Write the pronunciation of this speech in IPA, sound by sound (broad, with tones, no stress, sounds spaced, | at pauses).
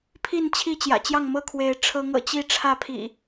pʰ i˥˨ n t͡ɕʰ i˥˨ t͡ɕ j ä̰˨˩ t͡ɕ j ɑ˥˨ ŋ m ɤ˥˨ kʰ w e˨˦ ɪ̯ ʈ͡ʂʰ ɤ˨˦ ŋ ɤ̰˨˩ t͡ɕ i˥˨ ʈ͡ʂʰ ä˥˨ pʰ ḭ˨˩